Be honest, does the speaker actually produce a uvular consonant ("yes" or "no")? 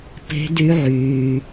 no